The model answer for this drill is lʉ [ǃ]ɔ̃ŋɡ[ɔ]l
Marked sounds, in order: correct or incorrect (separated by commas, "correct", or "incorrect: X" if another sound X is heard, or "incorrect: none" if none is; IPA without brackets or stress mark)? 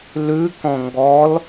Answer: incorrect: k, correct